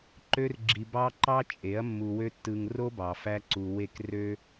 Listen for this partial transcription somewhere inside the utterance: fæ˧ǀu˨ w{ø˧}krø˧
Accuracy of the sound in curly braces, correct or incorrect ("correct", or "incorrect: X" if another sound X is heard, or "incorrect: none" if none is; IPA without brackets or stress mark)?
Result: incorrect: e˧